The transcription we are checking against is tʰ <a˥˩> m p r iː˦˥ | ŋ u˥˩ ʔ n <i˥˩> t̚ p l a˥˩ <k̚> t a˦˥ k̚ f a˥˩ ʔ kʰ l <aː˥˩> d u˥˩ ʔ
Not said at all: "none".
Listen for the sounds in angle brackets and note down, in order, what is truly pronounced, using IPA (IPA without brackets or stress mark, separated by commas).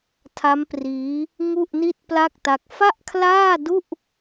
a˦˥, i˥˩, k̚, aː˥˩